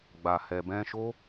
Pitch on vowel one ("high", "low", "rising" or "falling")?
low